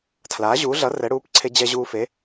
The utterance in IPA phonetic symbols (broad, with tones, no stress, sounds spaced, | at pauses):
tʰ l aː˩˥ ʑ uː˩˥ ɮ ʌ˩˥ r ɛ˩˥ ɽ uː˩˥ p ǀʰ e˧ d͡ʑ ɛ˧ ʑ uː˧ f e˩˥